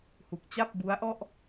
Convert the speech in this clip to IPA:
h u˨˩ k̚ t͡ɕ a˥˩ p̚ b u˦˥ a̯ ʔ ɔ˥˩ ʔ

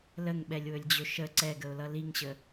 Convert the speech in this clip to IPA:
l ə ŋ ɓ ɛ lʲ w ɵ lʲ d͡ʑ ɵ ʃ ə ǀ ɛ ɡ ə ʊ̯ l ʌ l i ŋ ɕ ə

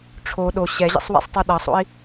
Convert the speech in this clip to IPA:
ʈ͡ʂʰ o ɗ o ɕ ɛ ʑ ḭ sˤ w ɛ̰ sˤ tˤ o ɗ ʌ sˤ o̰ i̯

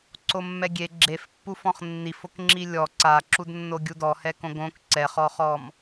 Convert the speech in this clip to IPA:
ǀ o mː ɛ ɡʲ e ɡ͡ǁ e f pː u f ɔ̃ χ nː i f o k ŋ͡ǁ i lʲ ɔ ǀ a ǁ u d nː o ɡʲ u d ɔ h ɛ k õ ɡ õ k ǀ ɛ χ ɔ χ ɔ m

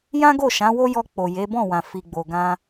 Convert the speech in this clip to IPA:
j ã˦ ɡ o˦˨ ʃ ã˨˦ w o˦ j ɔ˧ k͡p o˨ j e˨˦ b ɔ̃˦˨ w ã˨ f i˨ ɡ͡b o˨ ɡ ã˧

